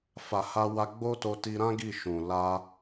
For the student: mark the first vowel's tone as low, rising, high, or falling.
low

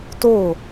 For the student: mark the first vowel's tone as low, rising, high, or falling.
falling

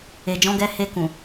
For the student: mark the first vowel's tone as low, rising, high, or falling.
low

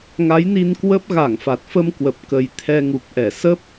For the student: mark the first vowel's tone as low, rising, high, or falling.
rising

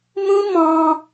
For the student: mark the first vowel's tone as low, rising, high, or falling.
high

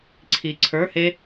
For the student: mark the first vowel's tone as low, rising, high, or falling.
low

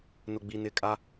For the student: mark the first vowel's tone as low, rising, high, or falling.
low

